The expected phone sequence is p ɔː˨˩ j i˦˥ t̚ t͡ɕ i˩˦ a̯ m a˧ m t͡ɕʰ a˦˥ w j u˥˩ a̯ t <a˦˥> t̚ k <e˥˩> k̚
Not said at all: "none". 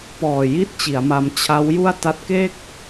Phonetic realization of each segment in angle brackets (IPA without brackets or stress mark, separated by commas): a˦˥, e˥˩